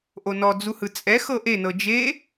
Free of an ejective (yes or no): no